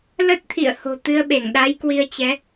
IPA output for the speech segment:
l ə˦˥ t̚ t̪ʰ ḭ˧˨ ə̯ h o̤˨˩ t̪ ɨ˧ ə̯ ɓ e˧˩ ŋ ɗ a˨˦ j k w i˧ ə̯ t͡ɕ ɛ˨˦

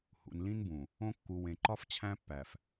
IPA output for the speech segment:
h ṵ˨ n l ĩ˦ n b ũ˨ | õ˦ kː u˨ w ẽ˨ ǃ ɒ˦ f t͡ɕʰ æ̃˦ pː æ˨ f

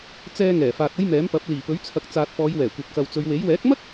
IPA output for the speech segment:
t͡s ɛː˧ ŋ ɛː˨˩ f aː˨ t̚ ɐ˥ j m ɛː˨˥ m p ɐ˨˥ p̚ l iː˨˩ p ɵ˨˥ ɥ t͡sʰ ɐ˨ k̚ t͡s aː˨ t̚ f ɔː˨˧ j w ɛː˨˩ kʷ ɐ˨ p̚ k ɐ˨ w t͡s ɵ˨˧ ɥ w e˨˥ j w ɛː˨˥ k̚ m ɐ˥ k̚

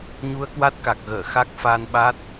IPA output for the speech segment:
ɲ u˧ ə̯ k w a˦˥ t̚ k a˨˩ k̚ ɣ əː˧˩ x a˦˥ k̚ f a˧ n ɓ a˦˥ t̚

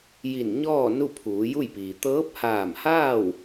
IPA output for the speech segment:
j i˧˩ n ɲ ɔː˥˨ n u˥˨ pʰ uː˩˧ j u˥˨ j p iː˩ t̪ ɤː˧˥ p̚ h aː˧˩ m h aː˥˨ w

